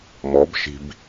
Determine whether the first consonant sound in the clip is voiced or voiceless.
voiced